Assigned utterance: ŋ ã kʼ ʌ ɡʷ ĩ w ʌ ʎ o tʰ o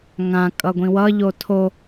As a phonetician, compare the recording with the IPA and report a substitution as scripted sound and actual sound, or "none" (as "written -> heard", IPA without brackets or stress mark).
none